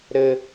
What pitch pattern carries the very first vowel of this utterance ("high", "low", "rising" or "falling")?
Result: low